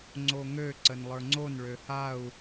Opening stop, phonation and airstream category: click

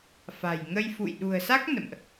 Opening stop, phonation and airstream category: implosive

